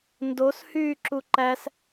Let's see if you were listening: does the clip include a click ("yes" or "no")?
yes